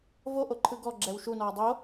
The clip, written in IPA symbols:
voʔoǃʰɯ ɡɔɡ͡ǁɛw ʃunɔː dˤo

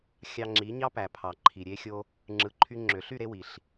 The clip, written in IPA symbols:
xʲɑ˧ŋ͡ǁi˨˦ɲɑ˦ pæ˨pʰɑ˨ ǃʰi˨ɾʲe˧xʲo˧ | ŋ͡ǁɯ˧ǃʰy˦ ŋ͡ǁø˨ɬy˦˨ ɾe˦wi˨ɬ

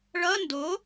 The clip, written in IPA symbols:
ɭʌ ndo

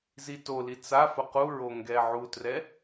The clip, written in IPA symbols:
zitoli t͡safʊ quɹo ŋɡɛʕutrɛ

